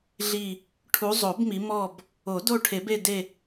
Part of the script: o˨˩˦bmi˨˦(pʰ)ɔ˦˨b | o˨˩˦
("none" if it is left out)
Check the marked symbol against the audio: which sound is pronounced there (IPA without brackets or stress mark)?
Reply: m